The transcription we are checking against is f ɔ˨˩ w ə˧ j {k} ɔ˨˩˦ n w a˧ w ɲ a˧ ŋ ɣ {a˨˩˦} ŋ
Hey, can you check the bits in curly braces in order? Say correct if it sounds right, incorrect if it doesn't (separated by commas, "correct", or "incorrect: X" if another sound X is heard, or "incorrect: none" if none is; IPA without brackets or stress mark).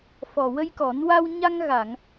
correct, incorrect: a˨˩˨